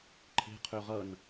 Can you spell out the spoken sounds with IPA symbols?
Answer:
ǃʰe̤ qʰøʁʌn

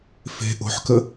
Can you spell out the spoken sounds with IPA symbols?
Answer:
fe̤ ʔo̤ħkə

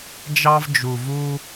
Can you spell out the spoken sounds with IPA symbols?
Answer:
d͡ʒɑ˥vd͡ʒu˧vu˥

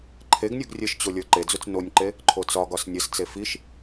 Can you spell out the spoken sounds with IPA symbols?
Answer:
ǃʰeɡnʲuɡ rʲɘʃt͡ɕo lʲə˞ǃed͡zut͡s nonʲǃe | ǃʰot͡sɒɡɒs nʲɘst͡se fiʃ

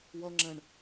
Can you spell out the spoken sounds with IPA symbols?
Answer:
wʌŋ͡ǁɛ̃ɳ

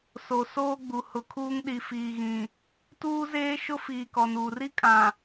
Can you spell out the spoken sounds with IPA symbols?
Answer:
so˨soː˦ɡ͡bu˨ hʊ˨kʰuː˦ŋ ɗi˨fiː˨ɣĩ˨ | tuː˦zeː˦ ʃʊ˦fiː˨ kɔ˨nuː˨r i˦kʼã˨

